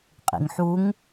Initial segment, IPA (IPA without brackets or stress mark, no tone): qʼ